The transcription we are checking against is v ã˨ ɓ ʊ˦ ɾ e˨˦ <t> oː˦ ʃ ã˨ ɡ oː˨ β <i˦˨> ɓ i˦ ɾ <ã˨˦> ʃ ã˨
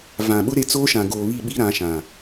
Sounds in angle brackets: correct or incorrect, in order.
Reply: incorrect, correct, correct

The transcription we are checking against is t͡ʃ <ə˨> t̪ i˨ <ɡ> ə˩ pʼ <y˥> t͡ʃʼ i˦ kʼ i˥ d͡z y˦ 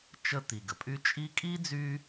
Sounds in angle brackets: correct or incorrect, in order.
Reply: incorrect, correct, incorrect

